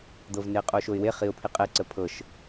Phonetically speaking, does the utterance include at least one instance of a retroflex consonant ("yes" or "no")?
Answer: no